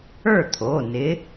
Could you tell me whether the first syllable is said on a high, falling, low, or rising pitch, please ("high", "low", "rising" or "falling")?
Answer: falling